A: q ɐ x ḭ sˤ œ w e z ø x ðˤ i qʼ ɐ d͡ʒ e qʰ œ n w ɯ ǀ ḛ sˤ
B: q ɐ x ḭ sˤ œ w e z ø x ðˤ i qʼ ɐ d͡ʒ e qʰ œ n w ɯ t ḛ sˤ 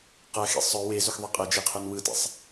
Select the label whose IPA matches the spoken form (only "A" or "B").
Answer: B